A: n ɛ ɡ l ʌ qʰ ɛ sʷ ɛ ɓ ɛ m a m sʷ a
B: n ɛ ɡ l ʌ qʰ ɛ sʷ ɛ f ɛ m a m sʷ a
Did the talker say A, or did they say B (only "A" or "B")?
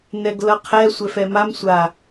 B